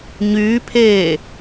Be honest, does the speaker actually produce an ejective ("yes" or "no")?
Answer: no